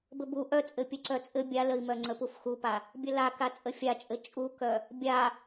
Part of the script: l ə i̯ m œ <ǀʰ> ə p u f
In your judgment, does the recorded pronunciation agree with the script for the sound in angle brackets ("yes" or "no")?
no